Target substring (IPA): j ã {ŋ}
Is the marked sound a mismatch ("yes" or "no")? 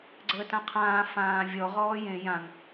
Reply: no